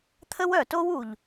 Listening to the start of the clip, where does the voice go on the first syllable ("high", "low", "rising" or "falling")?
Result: high